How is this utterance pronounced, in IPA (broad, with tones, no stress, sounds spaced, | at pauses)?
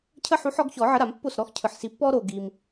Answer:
cʰ ə˦ ħ u˨˦ ħ ɔ˨˦ ɡ ç ɔ˨˩˦ ʕ ə˨˦ ɾ a˨˩˦ m pː o˥˩ s ɾ ɔ˦ x cʰ ɯ˨ ħ s i˨˦ pː ɔ˦ ɾ o˨ ɡ i˨ m